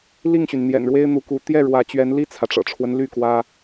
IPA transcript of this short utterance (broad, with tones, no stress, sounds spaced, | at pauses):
l i˥˨ ŋ ɕ y˩ n n̪ j ɛ̰˨˩ n ɻ w e˦ ɪ̯ n̪ u˨˦ k u˨˦ t̪ j ɛ˥˨ ɻ w ä˨˦ t͡ɕ ɥ ɛ˨˦ n l i˥˨ t͡sʰ ä˩ ʈ͡ʂ ɤ̰˨˩ ʈ͡ʂʰ w ə˦ n l y˥˨ k w ä˦